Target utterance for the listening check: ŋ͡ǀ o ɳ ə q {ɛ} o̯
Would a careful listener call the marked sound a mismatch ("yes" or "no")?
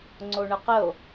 yes